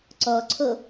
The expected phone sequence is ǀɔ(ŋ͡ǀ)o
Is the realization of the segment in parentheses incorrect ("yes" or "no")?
yes